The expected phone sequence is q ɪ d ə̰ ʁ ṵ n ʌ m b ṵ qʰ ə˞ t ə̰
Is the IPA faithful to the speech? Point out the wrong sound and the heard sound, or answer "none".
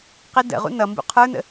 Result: t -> n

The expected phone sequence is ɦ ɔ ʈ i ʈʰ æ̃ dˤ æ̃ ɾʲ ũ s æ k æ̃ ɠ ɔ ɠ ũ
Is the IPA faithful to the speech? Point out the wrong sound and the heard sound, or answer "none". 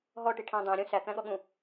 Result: none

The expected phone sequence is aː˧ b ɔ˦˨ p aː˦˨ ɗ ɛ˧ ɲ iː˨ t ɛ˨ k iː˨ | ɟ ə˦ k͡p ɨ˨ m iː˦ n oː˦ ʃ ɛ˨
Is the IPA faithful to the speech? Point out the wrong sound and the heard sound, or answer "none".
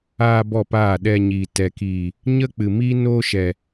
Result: ɟ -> ɲ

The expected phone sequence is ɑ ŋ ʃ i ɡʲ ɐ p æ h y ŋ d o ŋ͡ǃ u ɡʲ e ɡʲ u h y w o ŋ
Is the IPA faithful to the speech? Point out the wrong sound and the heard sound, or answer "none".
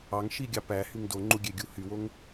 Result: ɐ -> ɑ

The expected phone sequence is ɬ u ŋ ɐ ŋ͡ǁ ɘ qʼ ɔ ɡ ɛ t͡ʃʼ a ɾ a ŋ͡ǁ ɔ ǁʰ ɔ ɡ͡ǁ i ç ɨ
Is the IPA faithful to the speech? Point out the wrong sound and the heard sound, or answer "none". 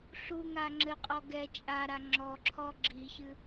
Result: ɐ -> a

